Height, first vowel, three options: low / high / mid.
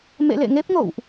mid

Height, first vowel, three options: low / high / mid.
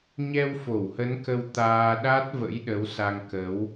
mid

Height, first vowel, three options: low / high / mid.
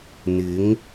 high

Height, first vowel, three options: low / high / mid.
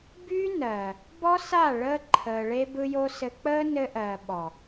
high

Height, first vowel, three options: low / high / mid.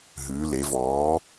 high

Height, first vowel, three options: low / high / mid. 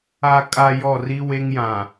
low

